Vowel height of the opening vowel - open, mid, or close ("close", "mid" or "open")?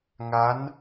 open